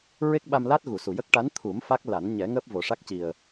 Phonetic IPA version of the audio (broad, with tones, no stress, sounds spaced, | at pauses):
ɹ e˦˥ k̚ ɓ a˧ m l a˦˥ t̚ ɣ u˨˩˨ s u˨˩ j ə˦˥ k̚ ʈ a˧˥ n t̪ʰ u˨˩˦ m f a˦˥ k̚ l a˨˩˦ n ɲ ɛ˨˩˦ ŋ əː˦˥ p̚ v o˨˩ ʂ a˦˥ k̚ c i˨˩ ə̯